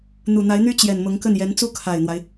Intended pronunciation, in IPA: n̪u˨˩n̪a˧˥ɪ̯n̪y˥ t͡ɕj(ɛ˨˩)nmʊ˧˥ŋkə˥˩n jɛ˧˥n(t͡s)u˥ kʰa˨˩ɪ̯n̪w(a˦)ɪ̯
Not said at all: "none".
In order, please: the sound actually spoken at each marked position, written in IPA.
ɛ˨˩, t͡s, a˦

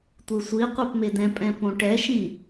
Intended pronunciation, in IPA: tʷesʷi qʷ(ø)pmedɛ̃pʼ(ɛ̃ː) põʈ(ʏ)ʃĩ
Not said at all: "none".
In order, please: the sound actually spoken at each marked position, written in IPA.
e, ɛ̃, ɛ

